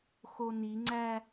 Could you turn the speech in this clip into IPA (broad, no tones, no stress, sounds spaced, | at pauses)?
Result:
x o n i ŋ͡ǀ æ